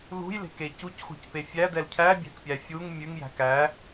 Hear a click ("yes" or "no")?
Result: no